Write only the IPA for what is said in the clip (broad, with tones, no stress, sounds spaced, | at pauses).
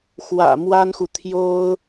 x w ä̰˨˩ m w a˥ n x u˨ t̪ʰ j o˥ ʊ̯